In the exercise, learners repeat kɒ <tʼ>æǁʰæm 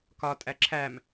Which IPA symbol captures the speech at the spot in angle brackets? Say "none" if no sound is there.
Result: tʼ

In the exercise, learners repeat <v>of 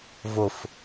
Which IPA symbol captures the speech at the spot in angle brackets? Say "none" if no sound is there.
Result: v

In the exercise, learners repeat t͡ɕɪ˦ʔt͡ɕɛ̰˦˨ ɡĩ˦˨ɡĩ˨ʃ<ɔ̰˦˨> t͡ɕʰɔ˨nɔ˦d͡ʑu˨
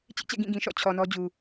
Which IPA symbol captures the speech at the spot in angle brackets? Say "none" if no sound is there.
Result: ɔ̰˦˨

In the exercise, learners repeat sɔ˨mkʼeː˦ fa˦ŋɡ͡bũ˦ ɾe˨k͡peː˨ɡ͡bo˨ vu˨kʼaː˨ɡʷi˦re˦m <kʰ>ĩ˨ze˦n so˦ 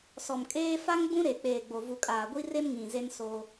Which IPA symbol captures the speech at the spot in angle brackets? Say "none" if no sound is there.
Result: ŋ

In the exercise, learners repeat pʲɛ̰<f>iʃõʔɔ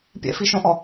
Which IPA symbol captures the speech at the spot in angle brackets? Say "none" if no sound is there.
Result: f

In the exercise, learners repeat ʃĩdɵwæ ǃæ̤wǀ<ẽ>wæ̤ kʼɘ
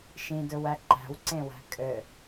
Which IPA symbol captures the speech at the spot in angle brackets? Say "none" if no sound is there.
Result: ẽ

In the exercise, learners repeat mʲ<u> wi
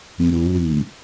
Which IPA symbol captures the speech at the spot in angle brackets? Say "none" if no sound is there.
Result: u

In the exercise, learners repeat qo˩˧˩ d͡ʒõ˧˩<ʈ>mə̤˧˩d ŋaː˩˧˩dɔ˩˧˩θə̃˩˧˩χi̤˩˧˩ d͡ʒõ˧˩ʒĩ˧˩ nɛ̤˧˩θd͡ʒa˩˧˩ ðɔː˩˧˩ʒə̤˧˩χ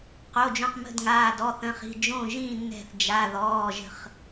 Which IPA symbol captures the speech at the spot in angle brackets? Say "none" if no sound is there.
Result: q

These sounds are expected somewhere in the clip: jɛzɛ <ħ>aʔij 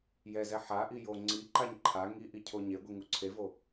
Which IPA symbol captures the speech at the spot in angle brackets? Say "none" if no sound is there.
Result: ħ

